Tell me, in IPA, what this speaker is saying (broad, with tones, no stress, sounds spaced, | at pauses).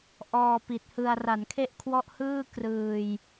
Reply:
ʔ ɔː˧ p i˨˩ t̚ h ɯ˧ a̯ r a˩˦ n kʰ e˥˩ ʔ kʰ w ɔ˥˩ ʔ h ɯː˥˩ k r ɯː˧ j